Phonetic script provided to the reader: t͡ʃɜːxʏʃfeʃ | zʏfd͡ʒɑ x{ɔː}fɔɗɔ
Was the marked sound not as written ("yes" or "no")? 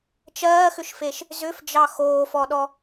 yes